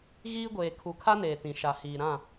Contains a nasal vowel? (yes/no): yes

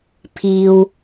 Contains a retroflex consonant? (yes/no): no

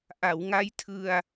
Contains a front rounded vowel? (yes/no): no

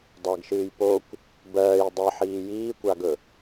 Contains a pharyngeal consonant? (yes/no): yes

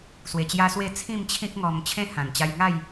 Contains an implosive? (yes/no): no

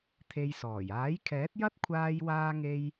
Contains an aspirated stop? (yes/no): yes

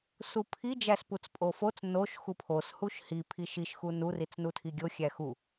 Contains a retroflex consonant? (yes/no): no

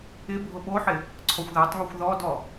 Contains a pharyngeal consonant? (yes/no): yes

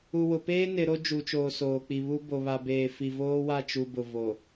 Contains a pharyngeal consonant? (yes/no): no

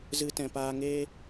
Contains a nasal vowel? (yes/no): yes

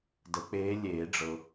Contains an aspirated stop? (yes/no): no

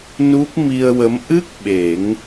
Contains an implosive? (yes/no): yes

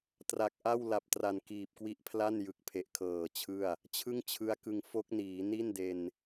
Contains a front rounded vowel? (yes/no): no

